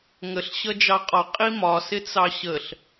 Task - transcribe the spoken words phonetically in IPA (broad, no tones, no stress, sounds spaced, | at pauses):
ŋ ə ɬ ɕ ʌ d͡ʒ ɑ qʼ ɒ qʼ i m ɒ s ɪ t͡s ɑ ɕ ə ɬ